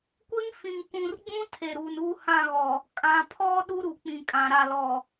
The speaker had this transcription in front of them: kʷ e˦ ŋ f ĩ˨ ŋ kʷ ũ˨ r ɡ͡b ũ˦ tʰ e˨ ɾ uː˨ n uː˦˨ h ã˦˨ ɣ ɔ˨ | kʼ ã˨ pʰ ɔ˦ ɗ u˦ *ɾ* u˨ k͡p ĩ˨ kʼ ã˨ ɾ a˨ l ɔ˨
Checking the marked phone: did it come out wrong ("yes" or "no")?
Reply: no